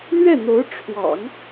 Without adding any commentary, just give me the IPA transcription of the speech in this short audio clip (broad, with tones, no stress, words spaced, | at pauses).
lɥɛ˥˩n̪o˧˥ʊ̯ ʈ͡ʂʰwɑ̰˨˩˦ŋ